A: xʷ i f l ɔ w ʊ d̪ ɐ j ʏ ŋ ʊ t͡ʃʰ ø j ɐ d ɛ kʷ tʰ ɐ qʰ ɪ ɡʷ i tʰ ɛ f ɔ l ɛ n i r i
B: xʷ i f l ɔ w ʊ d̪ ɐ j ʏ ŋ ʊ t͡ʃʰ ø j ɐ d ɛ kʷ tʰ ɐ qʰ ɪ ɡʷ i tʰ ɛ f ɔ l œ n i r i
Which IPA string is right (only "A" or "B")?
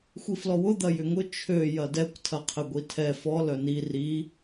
B